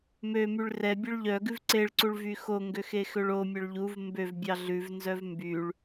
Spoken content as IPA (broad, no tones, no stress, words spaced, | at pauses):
mømyɭ rɛ bʲœɭʎœɡʉv ǀeɭǀuɭ vyxoŋɡø xexøɭomʲœɭ ʎuv mbøvbʲɑ ɮʉvnzœv mbyɭ